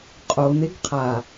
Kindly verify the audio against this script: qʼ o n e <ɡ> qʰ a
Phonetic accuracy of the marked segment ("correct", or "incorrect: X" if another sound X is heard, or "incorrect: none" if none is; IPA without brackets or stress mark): correct